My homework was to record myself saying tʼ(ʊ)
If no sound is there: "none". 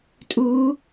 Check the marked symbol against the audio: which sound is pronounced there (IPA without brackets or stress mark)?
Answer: u